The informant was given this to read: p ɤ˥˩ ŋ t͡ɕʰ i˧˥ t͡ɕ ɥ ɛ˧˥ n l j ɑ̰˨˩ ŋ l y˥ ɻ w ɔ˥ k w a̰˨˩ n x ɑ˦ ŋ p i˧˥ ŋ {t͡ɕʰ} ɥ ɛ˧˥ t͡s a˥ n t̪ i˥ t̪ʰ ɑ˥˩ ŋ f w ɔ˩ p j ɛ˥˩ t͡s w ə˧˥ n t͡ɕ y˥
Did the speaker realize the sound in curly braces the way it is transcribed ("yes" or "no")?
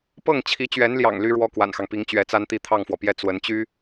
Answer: no